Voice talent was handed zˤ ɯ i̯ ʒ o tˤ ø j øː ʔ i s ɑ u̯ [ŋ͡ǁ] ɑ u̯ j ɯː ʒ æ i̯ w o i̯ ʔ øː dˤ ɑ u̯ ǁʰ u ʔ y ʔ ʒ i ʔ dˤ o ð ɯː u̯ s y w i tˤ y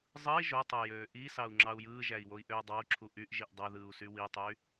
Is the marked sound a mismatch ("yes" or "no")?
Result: no